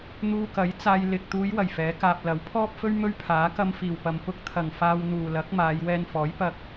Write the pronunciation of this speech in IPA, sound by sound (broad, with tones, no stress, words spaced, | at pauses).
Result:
n̪uː˧kɐ˨˥j t͡saː˧j lɪ˨k̚ t̪uː˨˧jwɐ˨˩j fɛː˨˥kaː˧p̚ lɐ˨˥wpʰɔː˥p̚fɵ˥ɥ mɵ˥ɥpʰaː˨˥ kɐ˧mfiː˨˩wpɐ˨m pʊ˧k̚t̪ʰɐ˨˩ŋ faː˧wn̪uː˨lɐ˨˥k̚ maː˨˧jwɛː˧nfɔː˨˥j pɐ˧k̚